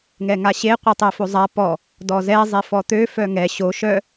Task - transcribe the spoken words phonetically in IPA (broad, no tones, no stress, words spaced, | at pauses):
ŋɛŋaɕe qʷœtˤefozˤa pɔ | dɔzɛ zˤefɔt̪ø fœŋɛ ɕo ʃœ